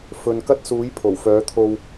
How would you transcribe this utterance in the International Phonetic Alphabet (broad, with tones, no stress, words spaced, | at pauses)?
fɵ˨nkɐ˥t̚suː˨˥j pʰo˨˩wfœː˨˥t̪ʰo˧w